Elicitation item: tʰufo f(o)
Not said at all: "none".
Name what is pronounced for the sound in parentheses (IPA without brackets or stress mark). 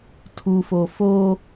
o